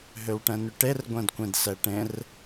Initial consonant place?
glottal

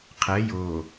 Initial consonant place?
uvular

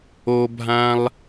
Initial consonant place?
labial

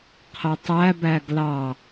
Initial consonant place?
uvular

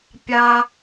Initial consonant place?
labial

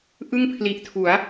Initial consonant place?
glottal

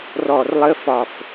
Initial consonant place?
alveolar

